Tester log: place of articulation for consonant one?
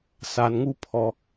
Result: alveolar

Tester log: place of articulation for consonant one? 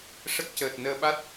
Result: retroflex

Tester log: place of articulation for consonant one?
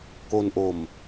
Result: velar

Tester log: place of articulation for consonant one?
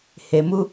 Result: glottal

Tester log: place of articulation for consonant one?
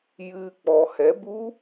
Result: palatal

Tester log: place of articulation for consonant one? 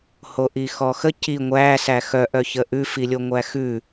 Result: glottal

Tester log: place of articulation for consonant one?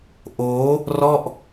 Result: glottal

